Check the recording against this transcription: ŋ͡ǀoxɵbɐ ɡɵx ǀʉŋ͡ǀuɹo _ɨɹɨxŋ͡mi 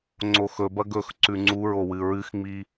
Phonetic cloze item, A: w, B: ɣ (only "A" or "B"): A